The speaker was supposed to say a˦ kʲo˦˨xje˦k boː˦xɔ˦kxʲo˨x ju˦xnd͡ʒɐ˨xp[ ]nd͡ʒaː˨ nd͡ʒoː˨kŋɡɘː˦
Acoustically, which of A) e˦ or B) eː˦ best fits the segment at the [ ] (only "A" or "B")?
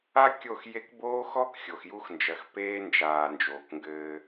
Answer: B